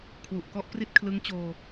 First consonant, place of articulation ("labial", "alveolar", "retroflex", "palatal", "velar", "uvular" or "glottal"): velar